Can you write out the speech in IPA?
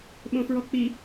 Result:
ɓ õ f ɹ ɔ k͡p i

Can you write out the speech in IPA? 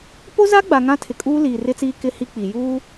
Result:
p o˦ z a˦ ɡ͡b a˨ ŋ ã˦ tʰ ɪ˨ kʼ uː˦ l iː˨ r ɪ˦ t͡s iː˦ k ɪ˦ h i˦ k͡p i˨ j uː˦

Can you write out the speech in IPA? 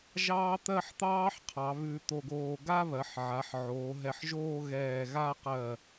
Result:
ʒ ɑː˥ t̪ ɜ˥˧ ħ t̪ ɑː˥ ħ qʰ ɑ˩˧ β ʉ˧ t̪ o˧ ɡ oː˧ ɡ a˥ β ɜ˩˧ ħ ʕ a˩˧ ħ ʕ oː˩˧ ɦ ɛ˧˩ ħ ʒ oː˥˧ ɣ ɛː˧˩ ɣ a˥˧ q ɜ˧˩

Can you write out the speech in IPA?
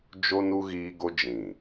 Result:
d͡ʒ o˦ n u˦ ɣ iː˦ ɡ o˦ d͡ʒ ĩ˨

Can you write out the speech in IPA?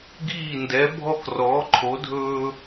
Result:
ɡ iː˥˧ n d ɛ˧˥ bʱ ɔ˥˧ k r ɔː˧˥ ǃʰ o˧˥ dʱ ɵː˥

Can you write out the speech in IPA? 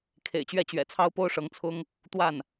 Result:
kʰ ḛ˨˩ ɪ̯ t͡ɕ ɥ ɛ˥˩ t͡ɕ ɥ ɛ̰˨˩ t͡sʰ ɑ˥ ʊ̯ p o˥ ʊ̯ ʂ ɤ˧˥ ŋ t͡sʰ ʊ˥ ŋ | t̪ w a˥˩ n

